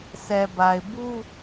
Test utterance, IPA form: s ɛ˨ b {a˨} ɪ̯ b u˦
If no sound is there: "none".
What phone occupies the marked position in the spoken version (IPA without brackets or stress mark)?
a˨